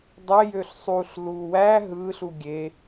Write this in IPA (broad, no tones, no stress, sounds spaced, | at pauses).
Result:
dˤ e j ø ɬ sˤ u ɬ l u w æ ɦ ɯ ɬ u ɡʲ e